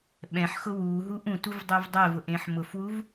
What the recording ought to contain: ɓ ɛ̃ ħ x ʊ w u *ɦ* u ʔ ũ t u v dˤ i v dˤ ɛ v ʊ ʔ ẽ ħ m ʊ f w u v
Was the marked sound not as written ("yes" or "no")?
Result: no